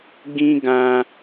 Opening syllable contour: high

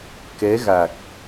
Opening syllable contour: rising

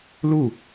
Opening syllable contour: falling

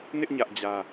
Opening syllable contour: high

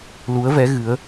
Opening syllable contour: rising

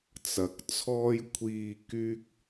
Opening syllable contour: low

